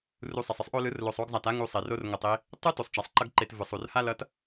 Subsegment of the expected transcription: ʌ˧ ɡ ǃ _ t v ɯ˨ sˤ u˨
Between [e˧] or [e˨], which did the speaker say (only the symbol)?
e˨